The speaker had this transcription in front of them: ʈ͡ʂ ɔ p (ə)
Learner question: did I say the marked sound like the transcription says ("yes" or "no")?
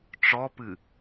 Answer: no